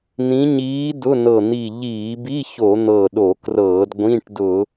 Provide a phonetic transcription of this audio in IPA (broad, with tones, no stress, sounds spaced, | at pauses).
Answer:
n̪ ĩ˧˥ ɲ iː˧˥ d ʊ˧˥˧ n ɤ˧˩ n̪ i˧˩ ʎ iː˧˩˧ b i˧˥˧ ç o˧˩˧ n̪ ɤ˧˩ ɗ o˧˩˧ k r ɤː˧˩˧ d ɡʷ ĩ˧˥˧ ʈ d ʊ˧˩˧